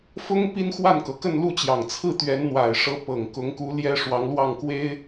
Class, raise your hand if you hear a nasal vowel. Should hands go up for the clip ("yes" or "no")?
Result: no